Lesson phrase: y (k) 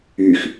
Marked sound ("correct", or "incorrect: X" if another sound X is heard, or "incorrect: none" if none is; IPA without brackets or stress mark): incorrect: x